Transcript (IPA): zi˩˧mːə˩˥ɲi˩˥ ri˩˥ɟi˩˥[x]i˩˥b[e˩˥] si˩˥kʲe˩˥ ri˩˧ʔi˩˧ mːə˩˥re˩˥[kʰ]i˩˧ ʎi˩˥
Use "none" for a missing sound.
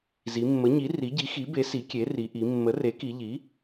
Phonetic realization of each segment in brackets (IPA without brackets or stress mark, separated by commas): x, e˩˥, k